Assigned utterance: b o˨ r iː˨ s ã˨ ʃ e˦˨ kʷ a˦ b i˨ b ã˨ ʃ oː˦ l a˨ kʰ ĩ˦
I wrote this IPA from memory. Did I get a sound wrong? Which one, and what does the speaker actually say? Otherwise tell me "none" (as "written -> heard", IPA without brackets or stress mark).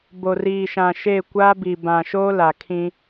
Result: s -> ʃ